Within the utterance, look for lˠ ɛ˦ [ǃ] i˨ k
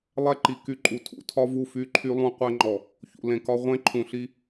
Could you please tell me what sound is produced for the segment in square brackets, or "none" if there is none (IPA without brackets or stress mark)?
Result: ǃ